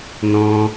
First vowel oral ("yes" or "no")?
no